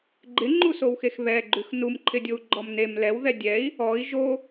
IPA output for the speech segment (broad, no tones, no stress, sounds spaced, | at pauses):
ɡ͡ǃ ɪ ŋ͡ǃ u s o w x e x β ɛ ɡ͡ǃ ʉ x n u m ǃʰ ɪ dʲ o u̯ ɡ͡ǃ ɔ m n e m l ɛ w ð ɛ dʲ ɛ i̯ | ɔ i̯ ʒ o